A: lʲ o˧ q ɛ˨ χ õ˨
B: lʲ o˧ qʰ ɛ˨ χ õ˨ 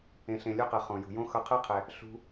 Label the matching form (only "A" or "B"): A